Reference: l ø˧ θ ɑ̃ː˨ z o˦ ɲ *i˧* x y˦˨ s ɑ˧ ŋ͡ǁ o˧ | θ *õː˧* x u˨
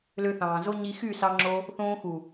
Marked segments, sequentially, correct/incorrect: correct, correct

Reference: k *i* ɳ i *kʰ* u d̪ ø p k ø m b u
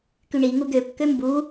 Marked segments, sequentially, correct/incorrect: incorrect, incorrect

